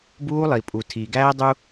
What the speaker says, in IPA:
b uː˦ lˠ i˨ pʼ u˨ tʰ iː˨ ɡ æː˦ dˤ u˦

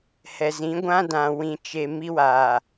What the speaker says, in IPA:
h ɛ˨ z ĩ˨˦ ɡʷ ã˦ d ã˨ w ĩ˨ t͡ʃ e˨ m i˦ w aː˨

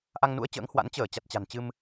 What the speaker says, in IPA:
ʔ a˧ ŋ n ṵ˧˥ ə̯ t͡ɕ ə̰ː˧˥ ŋ h w a̰˧˥ n t͡ɕ əː˧˩ t͡ɕ a˨˩ t̚ t͡ɕ a̤˨˩ n t͡ɕ ɨ˧ m

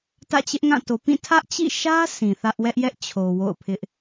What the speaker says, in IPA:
t ä̰˦˨ t͡ɕ ɪ˦ ʔ ŋ ã˦˨ t o˨ p ĩ˦˨ tʰ ä˦ ʔ t͡ɕ ḭ˦˨ ʃ ä˦ sʰ ĩ˨ θ ä˦ ʔ w ɛ˦ ʔ j ɛ˦ ʔ t͡ɕʰ o˨ w o̰˦˨ ʊ̯ pʰ ɪ˦ ʔ

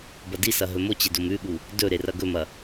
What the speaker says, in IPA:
b ɐ d i s ɐ ɦ ɵ m o t͡ɕ e d o m ʉ ɠ u | d ɵ ɾ e r ɐ ɡ ɵ m ɐ

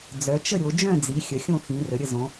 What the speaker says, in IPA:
d͡z œ˩˧ t͡ʃ ə˥˨ ɾʲ o˩˧ d͡ʒ œ̃˥˨ d͡z i˩˧ xʲ ə˩˧ xʲ õ˥˨ x ĩ˩˧ r ə˩˧ ɾʲ ə˥˨ z õ˩˧

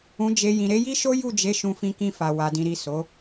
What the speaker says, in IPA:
ũ˨ d͡ʒ e˨ j ĩ˨ ɾ e˨˦ j i˦ ʃ o˦ j u˦˨ d͡ʒ e˨˦ ʃ ũ˧ f ĩ˧ k ĩ˧ f a˨ w a˨ d ĩ˨ ɾ i˨ s o˨˦

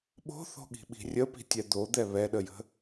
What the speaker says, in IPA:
ɓ o̤ θ o̤ ɠ i̤ ɓ i̤ rʲ ə p i̤ tʲ ɛ d̪ o d̪ ɛ β ɛ ɗ ə j ə̤

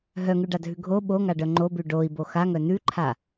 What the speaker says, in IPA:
ɦ œ ŋ ʉ ɖ a dʱ ʉ ɡʱ o ɓ o ŋ a ɖ œ ŋ͡ǃ o b ʉ ɖ o i̯ b o x a ŋ œ n ʉ ǃʰ a

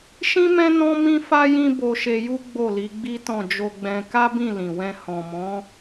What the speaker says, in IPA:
ʃ ĩ˦ m ɛ̃˦ n ɔ̃˦ m ĩ˦ f a˦ j ĩ˦ b o˧ ʃ e˧ j u˦ ɡ͡b o˦˨ l i˨˦ ɡ͡b i˦ t ɔ̃˦˨ d͡ʒ o˧ ɡ͡b ɛ̃˧ k a˦ b ĩ˦˨ l ĩ˨ w ɛ̃˧ h ɔ̃˨ m ɔ̃˨˦

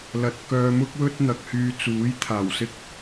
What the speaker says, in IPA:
l ɐ˨˥ t̚ k œː˧ m ʊ˥ k̚ w ɵ˥ t̚ n̪ ɐ˨ k̚ h yː˧ t͡s uː˨˥ j t̪ʰ aː˨˩ w s ɪ˥ k̚

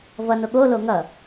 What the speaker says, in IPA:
v ʌ n o ɠ o l o ŋ ʌ

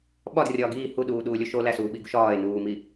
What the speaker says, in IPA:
ɓ ɒ d rʲ ɒː ɡ iː h u ɗ uː ɗ uː lʲ o ʃ o l æ s uː ɓ i ɡ u ʃ ɒː e̯ n uː m i

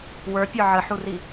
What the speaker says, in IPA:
w ə˞ pʲ ə˞ ʕ ə ħ u r i

